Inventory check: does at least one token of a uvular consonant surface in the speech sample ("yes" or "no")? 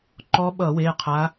yes